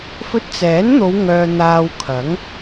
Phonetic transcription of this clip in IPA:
f ɵ˧ t̚ t͡s ɛː˨˥ n n̪ o˨˧ w ŋ œː˨ n̪ aː˧ w kʰ ɐ˨˥ ŋ

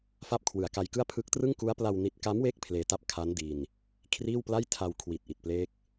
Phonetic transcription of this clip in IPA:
f a˥˩ p̚ kʰ w ɯ˨˩ a̯ k a˧ j k ɯ˥˩ a̯ pʰ ɯ˦˥ k̚ t r ɯ˥˩ ŋ k u˦˥ a̯ p l a˧ w n i˦˥ t̚ k a˦˥ m w e˦˥ k̚ pʰ l eː˧ t a˥˩ p̚ kʰ a˦˥ n d iː˧ n | kʰ r iː˥˩ w p l a˥˩ j tʰ a˧ w kʰ w i˨˩ t̚ ʔ i˨˩ t̚ p l eː˦˥ k̚

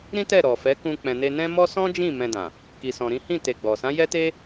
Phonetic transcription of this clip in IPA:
ɾ ĩ˦ t ɛ˦˨ ɾ ɔ˨ f ɛ˨˦ k ũ˧ k͡p ɛ̃˨ n e˧ n ɛ̃˦ m ɔ˦ s ɔ̃˦ d͡ʒ ĩ˦˨ m ɛ̃˧ d ã˨ | k i˨ s ɔ̃˨ ɾ ĩ˨˦ h ĩ˦˨ t e˧ ɡ͡b ɔ˨ s ã˨˦ j ɛ˦ t e˦

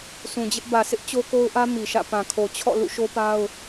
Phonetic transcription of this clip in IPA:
s ũ˨ d͡ʑ ɪ˦ ʔ b ä˨ sʰ ɪ˦ ʔ t͡ɕ o˦ k o˦ ʊ̯ ʔ ä˦ m i˨ ʃ ä̰˦˨ p ã˨ kʰ o˨ t͡ɕʰ ɔ̰˦˨ l ṵ˦˨ ʃ o˦ p a˦ ʊ̯

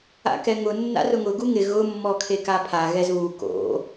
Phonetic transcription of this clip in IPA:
a̰ k ɛ ŋ ʊ nː a̰ r ʊ ŋ ʊ ɡ u ŋ ɪ ɣ ʊ mː ɔ kʰ e k a pʰ a ɣ ɛ z β u k o̰

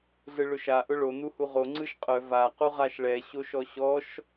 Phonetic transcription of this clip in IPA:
ɮ ɯ ɭ ʊ ʃ a ʔ ʊ ɭ o n u h u ʁ o ŋ͡ǀ ɯ ʃ qʼ œ v a q u ʁ a ʃ ɭ ɛ ɕ o ʃ ɔ ɕ ɔ ʃ

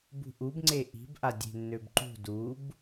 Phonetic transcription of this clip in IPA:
b ṳ ʔ u b ŋ͡ǀ e ʔ i̤ b ʔ a dʲ e̤ nː ø b ǃ ṳ d u b

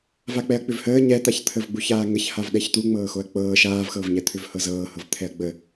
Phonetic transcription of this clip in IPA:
v a k͡p ɛ ɐ̯ k͡p ʏ v h əː ɲ ɛ t̪ a ç t̪ʰ ə v ɡ͡b u ç aː ŋ ə ç h a v ɗ ɛ ç t̪ u ŋ͡m ɤː x o ɐ̯ k͡p ɤː ʃ aː v x ɤː v ɲ ɛ t̪ʰ ʏ v h ɤ z ɤː h ɤ v t̪ʰ ɛ ɐ̯ ɡ͡b ə

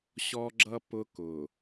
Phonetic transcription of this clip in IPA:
ɕ ɔ˦ ɡ͡ǁ ʌ˦ p ʊ˦ k ʊ˨

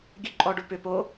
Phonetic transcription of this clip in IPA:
ɡʲ ʉ ǃʼ ɔ ɖ u p ʏ p o

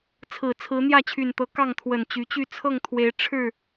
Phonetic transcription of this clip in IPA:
t͡sʰ ɹ̩˨˩ t͡sʰ ɹ̩˨˦ n̪ j ä˥˨ t͡ɕʰ y˨˩ n t̪ ɤ˨˦ k ɑ˥˨ ŋ t̪ʰ w ə˨˩ n t͡ɕ y˨˦ t͡ɕ y˥˨ t͡sʰ ɤ˥˨ ŋ t̪ʰ w e˨˦ ɪ̯ ʈ͡ʂʰ ɻ̩˥˨

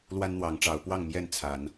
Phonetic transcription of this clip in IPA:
l w a˦ n n̪ w ɑ˨˦ ŋ ʈ͡ʂ ɑ˨˦ ʊ̯ p w ɑ˥˨ ŋ m j ɛ˥˨ n t͡sʰ a˨˦ n

